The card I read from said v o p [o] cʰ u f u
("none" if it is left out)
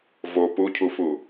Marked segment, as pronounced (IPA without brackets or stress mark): u